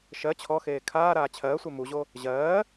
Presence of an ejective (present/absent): absent